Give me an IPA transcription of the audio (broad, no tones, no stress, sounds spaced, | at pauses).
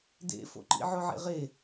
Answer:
d ḛ f o̰ ǃ ḭ ʕ ʊ ʕ ḛ ʁ e